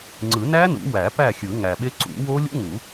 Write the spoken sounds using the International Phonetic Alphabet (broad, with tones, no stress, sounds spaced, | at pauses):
ŋ͡ǀ ɯ˨˩˦ n æ˦˥ n ṵ˨˩˦ w æ˨˩˦ p æ˥˩ xʲ ɯ˨˩˦ ŋ æ˨˩ ɓ e˦˥ ǀ ṵ˨˩˦ w o˦˥ lʲ ṵ˦˥ ŋ u˨˩˦